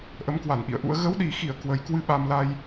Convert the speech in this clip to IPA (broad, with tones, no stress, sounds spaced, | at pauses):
ʔ ə˨˦ m k w a˧˩ n ʔ ḭ˧˨ ə̯ ʔ ṵ˧˥ ə̯ ɣ ə˨˦ w ɗ i˨˩ x i˧˩ ə̯ k w ə˨˩ j k w ɨ˧ ɓ a˧ m l a˧ j